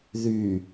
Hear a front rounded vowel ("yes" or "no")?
yes